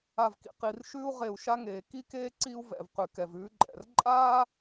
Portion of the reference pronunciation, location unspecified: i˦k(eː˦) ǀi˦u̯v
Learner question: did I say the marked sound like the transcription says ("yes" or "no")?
yes